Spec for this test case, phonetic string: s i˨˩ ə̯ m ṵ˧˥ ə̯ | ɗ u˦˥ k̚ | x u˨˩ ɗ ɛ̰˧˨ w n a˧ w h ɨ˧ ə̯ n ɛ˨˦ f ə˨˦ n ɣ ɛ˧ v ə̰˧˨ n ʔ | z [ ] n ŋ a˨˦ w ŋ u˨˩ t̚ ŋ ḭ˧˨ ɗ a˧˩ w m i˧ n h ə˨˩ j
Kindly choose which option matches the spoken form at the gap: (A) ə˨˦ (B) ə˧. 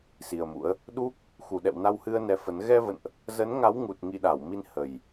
A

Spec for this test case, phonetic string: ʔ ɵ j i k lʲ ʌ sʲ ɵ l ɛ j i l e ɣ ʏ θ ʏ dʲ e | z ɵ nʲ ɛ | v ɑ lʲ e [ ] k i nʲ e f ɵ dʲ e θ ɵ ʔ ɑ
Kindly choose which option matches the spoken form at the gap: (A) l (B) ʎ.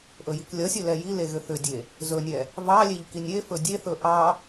B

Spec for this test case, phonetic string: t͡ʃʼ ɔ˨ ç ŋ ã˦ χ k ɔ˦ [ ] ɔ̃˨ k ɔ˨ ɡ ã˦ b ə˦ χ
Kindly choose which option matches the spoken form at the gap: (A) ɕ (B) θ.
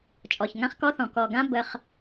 B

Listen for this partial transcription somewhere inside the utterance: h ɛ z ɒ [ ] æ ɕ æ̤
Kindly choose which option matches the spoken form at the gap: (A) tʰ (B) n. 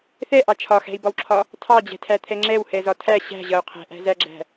A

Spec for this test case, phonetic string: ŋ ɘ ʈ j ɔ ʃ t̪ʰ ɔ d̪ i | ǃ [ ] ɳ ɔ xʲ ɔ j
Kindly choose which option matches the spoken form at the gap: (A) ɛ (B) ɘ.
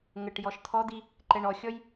A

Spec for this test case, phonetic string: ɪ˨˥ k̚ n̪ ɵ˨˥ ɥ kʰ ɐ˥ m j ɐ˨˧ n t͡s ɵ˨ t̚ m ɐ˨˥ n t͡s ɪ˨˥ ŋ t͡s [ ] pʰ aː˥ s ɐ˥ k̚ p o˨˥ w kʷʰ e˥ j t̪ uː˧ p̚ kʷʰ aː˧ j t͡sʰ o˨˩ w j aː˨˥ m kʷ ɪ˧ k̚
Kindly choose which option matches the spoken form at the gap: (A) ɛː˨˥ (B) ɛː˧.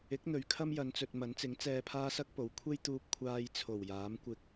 B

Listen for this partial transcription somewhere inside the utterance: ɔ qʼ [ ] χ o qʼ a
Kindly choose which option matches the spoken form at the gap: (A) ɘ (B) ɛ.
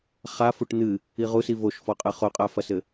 A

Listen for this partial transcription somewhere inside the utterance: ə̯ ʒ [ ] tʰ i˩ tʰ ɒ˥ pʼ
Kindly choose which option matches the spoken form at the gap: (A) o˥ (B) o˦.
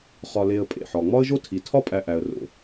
B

